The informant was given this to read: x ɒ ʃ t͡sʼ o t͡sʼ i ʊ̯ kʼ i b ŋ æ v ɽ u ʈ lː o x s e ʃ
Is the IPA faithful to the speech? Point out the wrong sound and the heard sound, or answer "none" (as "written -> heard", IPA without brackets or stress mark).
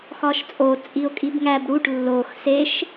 v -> b